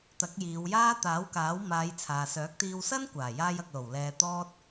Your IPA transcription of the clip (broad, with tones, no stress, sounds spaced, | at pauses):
t̪ ɐ˨˥ k̚ j iː˨˧ w j aː˥ t̪ aː˨˥ w k aː˨˥ w m aː˨˧ j t͡sʰ aː˨ s œː˨˥ k̚ t̪ iː˧ w s ɐ˥ n kʷ aː˨˩ j aː˧ j ɐ˨ k̚ l o˨˩ w l ɛː˧ t̪ ɔː˥ t̚